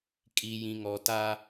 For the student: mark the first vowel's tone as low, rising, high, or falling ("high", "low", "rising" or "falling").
low